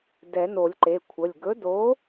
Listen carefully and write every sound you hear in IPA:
dɛ˨˩˦no˨˩˦lʲǃe˩˧˩kʷʰə˩˧˩lʲ ɡɵ˨˥do˨˥

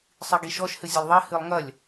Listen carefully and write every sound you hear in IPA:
sˤiɡiʃɔʃ hɨzʲelˠðˤɛ hɨlˠŋɐlʲ

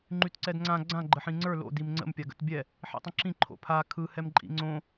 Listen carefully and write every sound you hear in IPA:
ŋ͡ǃytǀɛdŋ͡ǀã ɡ͡ǀã ɡ͡ǃəħĩŋ͡ǀə˞ lo̰ dimŋ͡ǀə̰m pʲaɡə̰tbʲɛ | ħḭtˤə̃ǁĩ ǃʰo̰pʰa kʰɯ hɛmǃʼḭŋ͡ǀõ

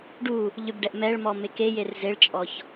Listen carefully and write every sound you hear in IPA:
ɖu | ʎʏbɖɛʔ mɛɭmɔ mekejer zeɭt͡ʃʼɔç

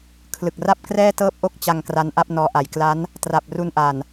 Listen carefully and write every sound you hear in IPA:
kʰlɯ˨˩k̚ra˥˩p̚ krɛː˥˩tɤː˥˩p̚ʔo˥˩k̚ t͡ɕa˧ŋ kra˦˥nʔa˥˩p̚nɔː˦˥ ʔa˩˦jkla˦˥n | tra˨˩p̚ ru˧nʔa˨˩n

